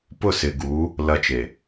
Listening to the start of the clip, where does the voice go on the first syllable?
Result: falling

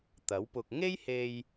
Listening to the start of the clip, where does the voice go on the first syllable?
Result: rising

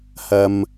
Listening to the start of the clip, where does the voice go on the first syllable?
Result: high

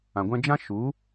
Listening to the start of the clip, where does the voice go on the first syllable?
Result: low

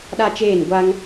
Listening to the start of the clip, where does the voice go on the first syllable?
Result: high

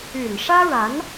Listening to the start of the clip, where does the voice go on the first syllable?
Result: low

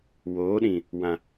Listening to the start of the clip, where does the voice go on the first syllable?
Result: rising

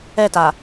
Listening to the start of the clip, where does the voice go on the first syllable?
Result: falling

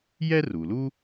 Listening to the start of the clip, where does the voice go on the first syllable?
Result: high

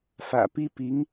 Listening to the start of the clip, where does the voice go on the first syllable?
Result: low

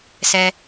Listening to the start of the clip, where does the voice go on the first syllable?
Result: high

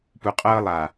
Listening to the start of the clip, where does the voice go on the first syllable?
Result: low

